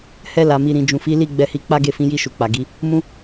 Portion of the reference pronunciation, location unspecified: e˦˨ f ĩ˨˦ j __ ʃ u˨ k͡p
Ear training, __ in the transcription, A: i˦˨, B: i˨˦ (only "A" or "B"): A